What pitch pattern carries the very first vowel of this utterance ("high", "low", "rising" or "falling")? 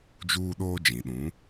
high